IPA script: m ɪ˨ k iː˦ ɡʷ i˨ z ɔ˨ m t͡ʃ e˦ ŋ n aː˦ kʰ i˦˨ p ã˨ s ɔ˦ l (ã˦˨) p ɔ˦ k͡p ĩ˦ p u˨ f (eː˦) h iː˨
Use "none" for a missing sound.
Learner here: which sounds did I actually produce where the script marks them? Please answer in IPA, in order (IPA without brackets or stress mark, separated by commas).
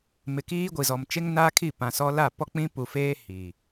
a˦˨, eː˦